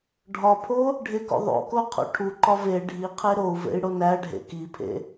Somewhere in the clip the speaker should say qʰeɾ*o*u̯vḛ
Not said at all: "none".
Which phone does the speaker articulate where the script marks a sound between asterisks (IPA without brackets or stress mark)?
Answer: o